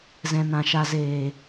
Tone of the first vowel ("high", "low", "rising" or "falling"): low